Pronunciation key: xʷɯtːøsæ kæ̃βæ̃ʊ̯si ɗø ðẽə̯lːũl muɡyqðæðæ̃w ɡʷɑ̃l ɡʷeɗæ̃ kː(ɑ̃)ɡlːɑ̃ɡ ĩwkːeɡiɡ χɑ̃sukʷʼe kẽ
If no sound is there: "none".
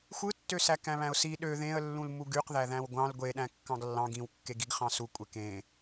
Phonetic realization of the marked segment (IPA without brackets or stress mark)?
ɑ̃